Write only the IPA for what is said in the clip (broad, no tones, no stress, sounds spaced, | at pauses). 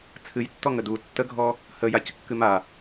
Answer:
t͡sʰ ɨ j tː ɔ ŋ ə d u tː ə ɡʱ ɔ | h ə j a c kː ɨ m a